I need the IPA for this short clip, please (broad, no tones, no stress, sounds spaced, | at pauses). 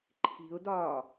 ǃʰ i̤ ʊ̯ d ɒː